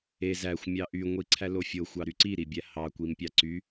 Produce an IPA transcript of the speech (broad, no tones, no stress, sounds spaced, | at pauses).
e z æ xʷ mʲ ɑ ʔ y ŋʷ i ǀʰ æ l o fʲ o xʷ ɑ ɾ y ǀ i ɾ i bʲ æ h ɑ kʷ i m pʲ ɑ ǀ y